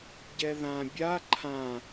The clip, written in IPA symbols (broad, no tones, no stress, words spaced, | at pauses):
ɟɛðã bʲa ǃʰã